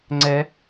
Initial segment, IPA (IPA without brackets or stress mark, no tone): ŋ͡ǀ